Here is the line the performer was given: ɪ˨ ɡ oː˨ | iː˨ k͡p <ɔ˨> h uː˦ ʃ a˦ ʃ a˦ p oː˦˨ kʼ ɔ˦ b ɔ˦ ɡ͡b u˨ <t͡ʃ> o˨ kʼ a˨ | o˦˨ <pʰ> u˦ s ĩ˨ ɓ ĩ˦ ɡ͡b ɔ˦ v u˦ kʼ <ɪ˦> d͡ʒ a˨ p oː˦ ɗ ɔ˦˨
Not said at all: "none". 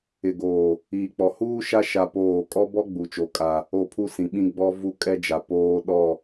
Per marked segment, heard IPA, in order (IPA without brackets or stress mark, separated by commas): ɔ˨, t͡ʃ, pʰ, ɛ˦